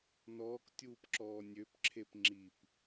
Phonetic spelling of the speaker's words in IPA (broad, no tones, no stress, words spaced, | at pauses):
nɔːktʲuːpǁɔː nʲøpǁʰep ŋ͡ǁip